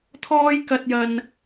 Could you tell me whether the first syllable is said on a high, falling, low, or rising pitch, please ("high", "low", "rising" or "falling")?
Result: high